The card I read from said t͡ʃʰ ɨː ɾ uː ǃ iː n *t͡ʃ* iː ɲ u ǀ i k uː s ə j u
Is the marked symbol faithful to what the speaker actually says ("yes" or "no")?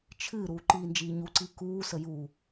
no